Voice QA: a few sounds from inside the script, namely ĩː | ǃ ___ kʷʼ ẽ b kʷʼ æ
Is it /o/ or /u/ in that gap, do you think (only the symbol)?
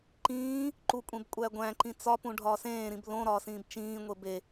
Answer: u